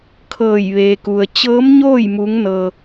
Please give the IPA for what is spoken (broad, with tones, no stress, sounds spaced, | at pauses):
kʰ ɤː˧˩ j ʋ eː˩ k u˩ ə̯ t͡ɕ ɤː˧˥ m ɲ oː˥˨ j m u˧˥ ŋ n ɤː˧